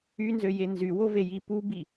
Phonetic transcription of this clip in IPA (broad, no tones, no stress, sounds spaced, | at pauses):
y n z ø j e n z y w o v e j i p u b i